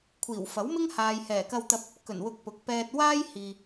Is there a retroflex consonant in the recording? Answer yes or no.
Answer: no